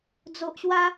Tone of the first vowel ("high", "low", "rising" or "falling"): low